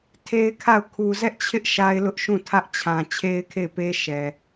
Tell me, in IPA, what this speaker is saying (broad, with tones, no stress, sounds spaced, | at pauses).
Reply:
tʰ e˦ ɪ̯ kʰ a˦˨ ʊ̯ kʰ u˨ z ɛ˦ ʔ t͡ɕʰ ɪ˦ ʔ ʃ a˦ ɪ̯ l ʊ˦ ʔ ʃ ũ˦˨ tʰ ä˦ ʔ t͡ɕʰ ã˨ t͡ɕʰ e˦ ɪ̯ kʰ e˦˨ ɪ̯ p e˦ ʃ ɛ˨